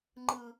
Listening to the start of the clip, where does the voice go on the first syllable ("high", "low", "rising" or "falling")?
low